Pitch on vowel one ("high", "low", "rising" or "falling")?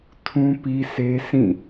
high